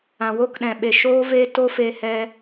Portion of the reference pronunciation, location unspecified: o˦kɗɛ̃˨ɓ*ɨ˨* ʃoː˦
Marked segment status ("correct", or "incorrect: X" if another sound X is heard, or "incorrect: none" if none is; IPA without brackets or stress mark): incorrect: e˨